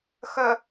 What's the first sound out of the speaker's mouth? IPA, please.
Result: x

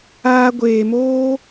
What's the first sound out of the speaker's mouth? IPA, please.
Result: aː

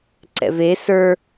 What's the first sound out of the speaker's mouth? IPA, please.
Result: ǀ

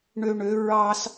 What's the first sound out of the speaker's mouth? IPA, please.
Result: ɳ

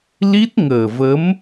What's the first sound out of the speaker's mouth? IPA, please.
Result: l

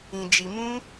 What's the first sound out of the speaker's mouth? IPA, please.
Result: ĩ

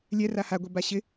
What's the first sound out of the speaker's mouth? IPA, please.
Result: lʲ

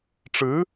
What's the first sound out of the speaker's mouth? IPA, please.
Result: ʈ͡ʂ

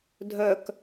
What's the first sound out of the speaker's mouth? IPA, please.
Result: dʱ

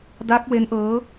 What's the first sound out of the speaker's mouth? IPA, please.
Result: d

